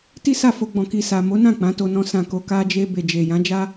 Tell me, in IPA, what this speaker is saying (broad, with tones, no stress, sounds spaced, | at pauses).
t i˦ s a˦˨ f o˧ ɡ͡b ɔ̃˨ k i˨ s a˨ m o˨˦ n ã˦˨ k͡p ã˨˦ t o˧ n ɔ̃˧ s ã˨ k o˨ k a˧ d͡ʒ e˧ b e˨ d͡ʒ e˨ j ã˨˦ d͡ʒ a˦